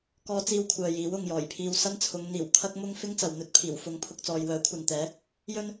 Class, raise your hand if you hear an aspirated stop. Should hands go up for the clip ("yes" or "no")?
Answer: yes